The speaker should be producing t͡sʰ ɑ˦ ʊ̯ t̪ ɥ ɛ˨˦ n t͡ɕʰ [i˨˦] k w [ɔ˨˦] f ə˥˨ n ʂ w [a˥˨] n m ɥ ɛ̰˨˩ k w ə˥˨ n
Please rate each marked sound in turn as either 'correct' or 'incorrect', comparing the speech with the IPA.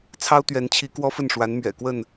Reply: correct, incorrect, incorrect

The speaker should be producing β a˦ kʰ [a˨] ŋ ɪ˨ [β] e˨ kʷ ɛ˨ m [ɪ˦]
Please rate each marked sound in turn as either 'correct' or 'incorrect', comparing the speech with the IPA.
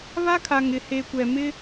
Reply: correct, incorrect, correct

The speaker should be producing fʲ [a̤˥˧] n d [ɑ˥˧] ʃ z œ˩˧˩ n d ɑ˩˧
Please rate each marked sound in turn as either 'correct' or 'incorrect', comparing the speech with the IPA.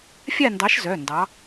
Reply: incorrect, incorrect

